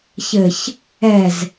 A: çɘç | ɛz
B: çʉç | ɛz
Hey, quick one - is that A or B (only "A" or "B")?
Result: A